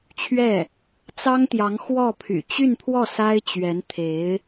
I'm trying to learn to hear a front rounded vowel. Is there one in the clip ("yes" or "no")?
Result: yes